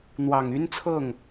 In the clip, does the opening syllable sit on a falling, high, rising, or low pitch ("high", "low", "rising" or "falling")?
low